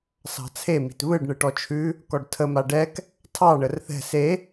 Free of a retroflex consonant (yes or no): no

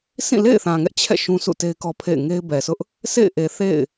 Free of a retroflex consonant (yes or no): yes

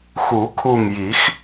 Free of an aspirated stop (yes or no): no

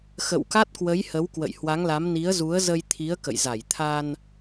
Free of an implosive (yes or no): yes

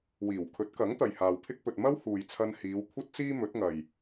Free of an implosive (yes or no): yes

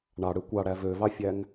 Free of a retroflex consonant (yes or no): no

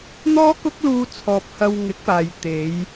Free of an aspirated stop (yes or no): no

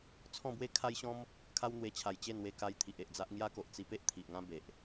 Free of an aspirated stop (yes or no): no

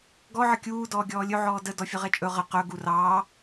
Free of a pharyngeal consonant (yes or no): no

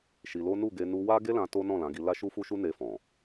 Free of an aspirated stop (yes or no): yes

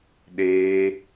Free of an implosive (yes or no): no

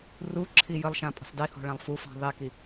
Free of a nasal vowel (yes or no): no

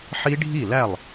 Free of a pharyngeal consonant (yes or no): no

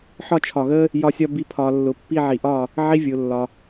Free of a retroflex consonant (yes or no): yes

